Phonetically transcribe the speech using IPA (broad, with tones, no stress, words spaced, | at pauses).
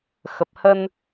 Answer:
xə˨˩p̚hə˧n